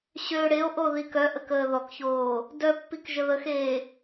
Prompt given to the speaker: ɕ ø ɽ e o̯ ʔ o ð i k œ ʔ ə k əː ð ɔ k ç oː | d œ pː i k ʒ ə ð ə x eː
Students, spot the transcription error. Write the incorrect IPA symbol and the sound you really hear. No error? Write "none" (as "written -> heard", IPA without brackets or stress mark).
none